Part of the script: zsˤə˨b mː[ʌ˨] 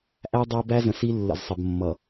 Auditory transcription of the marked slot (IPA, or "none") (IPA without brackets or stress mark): ʌ˨